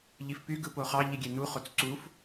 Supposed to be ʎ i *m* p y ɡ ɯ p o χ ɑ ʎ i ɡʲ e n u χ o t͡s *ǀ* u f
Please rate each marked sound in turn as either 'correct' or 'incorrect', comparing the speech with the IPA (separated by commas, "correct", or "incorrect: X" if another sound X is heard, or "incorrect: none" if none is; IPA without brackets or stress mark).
incorrect: f, correct